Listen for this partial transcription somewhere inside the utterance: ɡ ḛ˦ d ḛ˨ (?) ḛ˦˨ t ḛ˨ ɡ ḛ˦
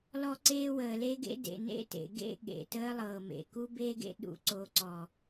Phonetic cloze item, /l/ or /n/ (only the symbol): n